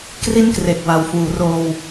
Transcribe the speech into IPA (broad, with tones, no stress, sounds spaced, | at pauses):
k r i˥˩ n k r e˨˩ k̚ w a˨˩ w f uː˩˦ r oː˧ w